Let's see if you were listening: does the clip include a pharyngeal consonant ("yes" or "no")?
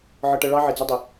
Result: yes